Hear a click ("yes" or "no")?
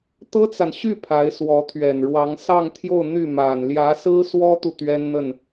no